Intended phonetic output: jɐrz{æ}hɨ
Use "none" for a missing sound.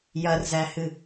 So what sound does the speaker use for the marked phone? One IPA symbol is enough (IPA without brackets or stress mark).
æ